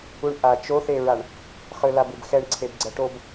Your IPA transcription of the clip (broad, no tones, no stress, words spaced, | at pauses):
uɳʔa t͡ʃoθeɹaɳ | χɯlabɯbxɛɳ ǀʰebɡ͡ǀʌʈob